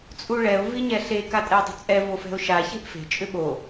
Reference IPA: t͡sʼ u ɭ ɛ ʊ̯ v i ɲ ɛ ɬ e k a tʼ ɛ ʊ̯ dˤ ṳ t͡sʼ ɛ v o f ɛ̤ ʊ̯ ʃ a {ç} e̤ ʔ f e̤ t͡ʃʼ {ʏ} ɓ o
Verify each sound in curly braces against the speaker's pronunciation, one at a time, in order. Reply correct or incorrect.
correct, correct

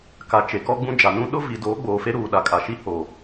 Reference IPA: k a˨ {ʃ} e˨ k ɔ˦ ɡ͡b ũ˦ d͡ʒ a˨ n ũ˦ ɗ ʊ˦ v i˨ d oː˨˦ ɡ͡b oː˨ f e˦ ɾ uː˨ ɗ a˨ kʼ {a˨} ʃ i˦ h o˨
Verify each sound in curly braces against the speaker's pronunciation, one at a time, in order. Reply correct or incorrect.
incorrect, correct

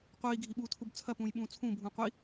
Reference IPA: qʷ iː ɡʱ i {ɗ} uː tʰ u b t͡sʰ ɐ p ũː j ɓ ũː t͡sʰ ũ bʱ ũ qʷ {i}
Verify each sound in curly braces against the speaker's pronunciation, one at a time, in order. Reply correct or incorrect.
incorrect, correct

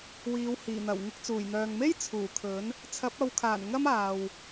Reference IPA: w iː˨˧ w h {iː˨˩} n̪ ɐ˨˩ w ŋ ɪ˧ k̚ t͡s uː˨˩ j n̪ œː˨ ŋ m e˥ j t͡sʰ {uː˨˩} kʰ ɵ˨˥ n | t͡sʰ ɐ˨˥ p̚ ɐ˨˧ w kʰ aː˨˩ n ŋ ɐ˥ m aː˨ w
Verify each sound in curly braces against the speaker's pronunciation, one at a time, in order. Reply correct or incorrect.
correct, correct

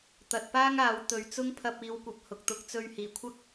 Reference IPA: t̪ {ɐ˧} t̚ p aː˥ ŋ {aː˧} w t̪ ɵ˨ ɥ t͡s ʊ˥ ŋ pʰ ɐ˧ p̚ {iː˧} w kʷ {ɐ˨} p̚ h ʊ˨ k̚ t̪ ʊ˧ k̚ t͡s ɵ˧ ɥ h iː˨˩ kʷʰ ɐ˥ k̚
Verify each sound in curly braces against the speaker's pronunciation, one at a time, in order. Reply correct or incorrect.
incorrect, incorrect, incorrect, correct

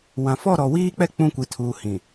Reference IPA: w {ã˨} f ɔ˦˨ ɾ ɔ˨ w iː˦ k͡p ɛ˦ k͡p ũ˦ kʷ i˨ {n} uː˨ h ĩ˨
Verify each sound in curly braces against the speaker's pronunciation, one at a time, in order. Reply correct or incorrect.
correct, incorrect

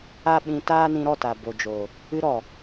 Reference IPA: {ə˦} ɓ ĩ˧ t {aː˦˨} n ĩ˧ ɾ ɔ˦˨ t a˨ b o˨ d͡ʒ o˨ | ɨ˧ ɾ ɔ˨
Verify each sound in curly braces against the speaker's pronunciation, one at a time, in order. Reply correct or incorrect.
incorrect, incorrect

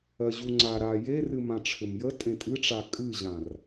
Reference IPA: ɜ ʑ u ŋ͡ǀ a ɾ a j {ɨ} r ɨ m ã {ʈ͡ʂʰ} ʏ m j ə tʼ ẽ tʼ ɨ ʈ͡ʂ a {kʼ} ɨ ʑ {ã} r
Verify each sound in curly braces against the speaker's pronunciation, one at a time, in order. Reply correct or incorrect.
incorrect, correct, correct, correct

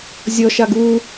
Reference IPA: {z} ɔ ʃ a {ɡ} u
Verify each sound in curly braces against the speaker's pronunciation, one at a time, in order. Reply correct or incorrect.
incorrect, correct

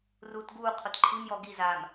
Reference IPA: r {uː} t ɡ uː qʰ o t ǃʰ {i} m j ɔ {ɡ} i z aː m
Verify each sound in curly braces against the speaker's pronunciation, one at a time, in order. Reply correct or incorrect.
correct, correct, correct

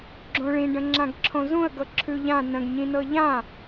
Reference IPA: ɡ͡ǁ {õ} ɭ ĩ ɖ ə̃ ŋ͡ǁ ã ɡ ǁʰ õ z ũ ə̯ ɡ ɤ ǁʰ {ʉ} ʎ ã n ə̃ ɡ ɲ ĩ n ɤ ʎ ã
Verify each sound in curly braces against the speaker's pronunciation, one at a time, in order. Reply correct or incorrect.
correct, correct

